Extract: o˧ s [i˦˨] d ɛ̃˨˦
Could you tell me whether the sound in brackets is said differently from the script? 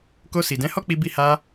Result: yes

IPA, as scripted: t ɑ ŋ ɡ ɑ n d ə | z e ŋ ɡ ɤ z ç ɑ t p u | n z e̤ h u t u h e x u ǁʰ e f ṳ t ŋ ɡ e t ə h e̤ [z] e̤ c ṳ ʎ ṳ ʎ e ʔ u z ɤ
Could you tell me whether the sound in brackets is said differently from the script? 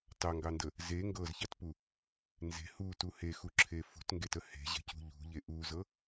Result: yes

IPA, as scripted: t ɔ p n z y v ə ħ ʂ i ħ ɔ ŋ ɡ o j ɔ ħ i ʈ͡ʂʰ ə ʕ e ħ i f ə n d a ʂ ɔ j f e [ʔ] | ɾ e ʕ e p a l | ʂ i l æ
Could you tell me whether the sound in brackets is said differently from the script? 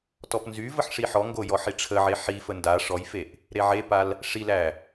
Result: no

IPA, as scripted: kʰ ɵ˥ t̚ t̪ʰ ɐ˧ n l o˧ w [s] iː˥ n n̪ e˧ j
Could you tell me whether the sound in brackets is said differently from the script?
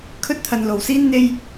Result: no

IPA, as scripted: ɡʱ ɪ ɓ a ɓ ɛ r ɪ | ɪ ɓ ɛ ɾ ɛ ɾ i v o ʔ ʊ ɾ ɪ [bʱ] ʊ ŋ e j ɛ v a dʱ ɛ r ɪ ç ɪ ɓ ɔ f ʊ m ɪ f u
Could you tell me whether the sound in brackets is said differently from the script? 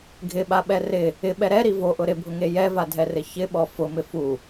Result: no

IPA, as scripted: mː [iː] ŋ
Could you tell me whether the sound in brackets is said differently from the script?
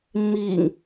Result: no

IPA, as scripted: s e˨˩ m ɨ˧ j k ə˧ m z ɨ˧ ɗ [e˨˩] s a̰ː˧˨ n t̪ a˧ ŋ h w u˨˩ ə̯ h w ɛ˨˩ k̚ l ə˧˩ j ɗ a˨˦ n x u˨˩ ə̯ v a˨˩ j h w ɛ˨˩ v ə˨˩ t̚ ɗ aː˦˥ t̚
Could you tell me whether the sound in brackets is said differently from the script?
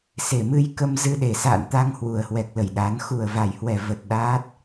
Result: no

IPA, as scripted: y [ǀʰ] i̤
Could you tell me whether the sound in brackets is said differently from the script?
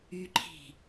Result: yes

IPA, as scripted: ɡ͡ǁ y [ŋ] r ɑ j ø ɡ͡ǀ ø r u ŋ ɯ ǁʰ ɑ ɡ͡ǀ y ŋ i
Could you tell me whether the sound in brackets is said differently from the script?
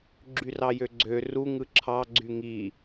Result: yes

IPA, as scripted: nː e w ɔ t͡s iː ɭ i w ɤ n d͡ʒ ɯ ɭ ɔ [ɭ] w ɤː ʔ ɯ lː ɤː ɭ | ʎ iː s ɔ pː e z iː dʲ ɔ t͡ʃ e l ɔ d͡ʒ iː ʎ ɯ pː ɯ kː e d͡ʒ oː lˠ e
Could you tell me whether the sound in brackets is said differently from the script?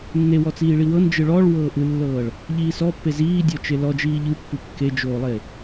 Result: no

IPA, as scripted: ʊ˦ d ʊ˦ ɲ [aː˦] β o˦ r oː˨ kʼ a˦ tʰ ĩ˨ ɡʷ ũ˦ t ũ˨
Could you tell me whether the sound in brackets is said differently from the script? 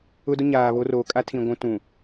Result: yes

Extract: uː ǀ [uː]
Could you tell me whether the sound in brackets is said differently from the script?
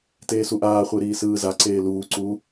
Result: no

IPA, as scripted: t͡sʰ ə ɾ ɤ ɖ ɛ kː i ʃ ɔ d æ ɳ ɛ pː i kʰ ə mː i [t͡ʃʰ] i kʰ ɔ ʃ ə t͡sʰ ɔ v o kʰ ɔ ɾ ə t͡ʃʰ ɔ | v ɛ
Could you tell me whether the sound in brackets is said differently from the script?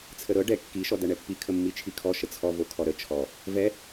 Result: no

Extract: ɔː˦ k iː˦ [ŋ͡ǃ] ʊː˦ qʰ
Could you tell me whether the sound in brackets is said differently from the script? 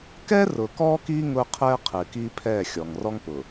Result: yes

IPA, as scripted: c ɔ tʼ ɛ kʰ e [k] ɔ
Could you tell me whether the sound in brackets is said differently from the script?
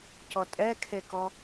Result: no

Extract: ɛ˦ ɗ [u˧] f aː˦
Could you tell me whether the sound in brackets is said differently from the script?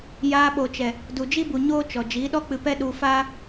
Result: no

